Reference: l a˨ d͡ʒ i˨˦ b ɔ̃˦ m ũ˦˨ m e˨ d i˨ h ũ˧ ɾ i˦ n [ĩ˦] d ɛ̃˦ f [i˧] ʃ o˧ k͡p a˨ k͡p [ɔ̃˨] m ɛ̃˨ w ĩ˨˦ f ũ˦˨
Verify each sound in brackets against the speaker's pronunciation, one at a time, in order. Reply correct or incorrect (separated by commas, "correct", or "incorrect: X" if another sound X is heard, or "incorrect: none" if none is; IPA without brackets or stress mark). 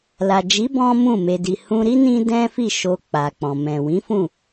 correct, incorrect: i˦˨, correct